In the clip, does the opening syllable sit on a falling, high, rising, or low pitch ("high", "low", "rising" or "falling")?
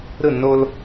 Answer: falling